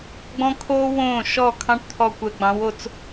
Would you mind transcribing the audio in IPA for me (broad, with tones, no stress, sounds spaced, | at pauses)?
ɡ͡b ɔ̃˦ kʰ oː˦ w õː˦˨ ʃ ɔː˦˨ kʰ ɑ̃˦ ʈ t̪ʰ ɔ˨ kʷ ɛ˨ ɡ͡b ɑ̃˨˦ w o˨ t͡s